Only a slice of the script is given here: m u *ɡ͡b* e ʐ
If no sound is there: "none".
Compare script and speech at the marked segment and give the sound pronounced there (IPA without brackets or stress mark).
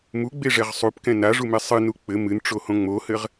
ɡ͡b